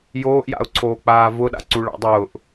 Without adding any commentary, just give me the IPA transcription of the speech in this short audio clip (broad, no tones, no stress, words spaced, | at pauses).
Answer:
joːʔja̰ʊ̯ǀʰoːk͡paː vʊɗa̰ǀuɭɑ̰ dˤʊːʔ